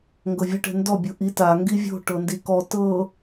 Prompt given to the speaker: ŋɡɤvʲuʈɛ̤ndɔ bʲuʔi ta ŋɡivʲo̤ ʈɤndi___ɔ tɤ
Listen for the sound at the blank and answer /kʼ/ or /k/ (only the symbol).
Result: k